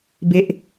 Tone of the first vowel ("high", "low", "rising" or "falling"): high